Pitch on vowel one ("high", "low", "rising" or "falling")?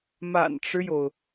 low